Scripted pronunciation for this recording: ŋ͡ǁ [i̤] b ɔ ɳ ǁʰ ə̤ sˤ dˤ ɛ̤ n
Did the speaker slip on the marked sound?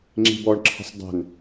no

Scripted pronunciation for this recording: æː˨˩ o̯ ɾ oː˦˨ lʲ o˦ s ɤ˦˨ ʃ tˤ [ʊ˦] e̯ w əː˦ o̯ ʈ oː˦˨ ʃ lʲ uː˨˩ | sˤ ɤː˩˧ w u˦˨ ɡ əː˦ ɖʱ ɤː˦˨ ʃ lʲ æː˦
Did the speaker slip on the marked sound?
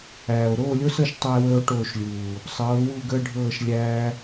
yes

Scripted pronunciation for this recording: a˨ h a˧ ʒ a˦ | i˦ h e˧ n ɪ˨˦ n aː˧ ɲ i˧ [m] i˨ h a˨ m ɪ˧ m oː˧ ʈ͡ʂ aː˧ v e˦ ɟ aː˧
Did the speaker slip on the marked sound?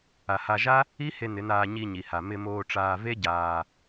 yes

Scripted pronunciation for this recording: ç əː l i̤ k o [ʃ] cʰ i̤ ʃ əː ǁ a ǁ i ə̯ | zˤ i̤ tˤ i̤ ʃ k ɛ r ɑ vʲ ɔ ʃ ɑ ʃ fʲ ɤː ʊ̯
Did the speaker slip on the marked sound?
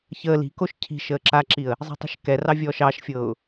no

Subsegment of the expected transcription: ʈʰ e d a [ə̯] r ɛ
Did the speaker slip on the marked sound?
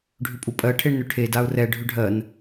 yes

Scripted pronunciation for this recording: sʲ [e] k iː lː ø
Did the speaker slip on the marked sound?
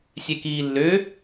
no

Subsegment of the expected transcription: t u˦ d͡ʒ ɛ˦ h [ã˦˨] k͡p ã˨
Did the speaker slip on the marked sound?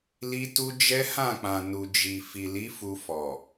no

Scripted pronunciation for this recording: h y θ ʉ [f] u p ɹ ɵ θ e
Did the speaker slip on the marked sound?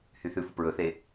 no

